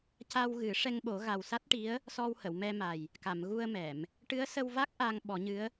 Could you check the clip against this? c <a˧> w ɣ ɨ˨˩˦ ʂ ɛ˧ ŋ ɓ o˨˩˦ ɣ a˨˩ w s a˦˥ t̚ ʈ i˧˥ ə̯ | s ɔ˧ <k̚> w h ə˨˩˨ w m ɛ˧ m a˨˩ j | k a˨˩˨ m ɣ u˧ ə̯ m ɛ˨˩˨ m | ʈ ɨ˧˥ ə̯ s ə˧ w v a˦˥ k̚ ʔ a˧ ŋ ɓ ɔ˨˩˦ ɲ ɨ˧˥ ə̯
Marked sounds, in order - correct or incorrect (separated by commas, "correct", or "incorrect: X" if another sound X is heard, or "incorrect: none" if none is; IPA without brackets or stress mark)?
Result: correct, incorrect: none